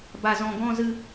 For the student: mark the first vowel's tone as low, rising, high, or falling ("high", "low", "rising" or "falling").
high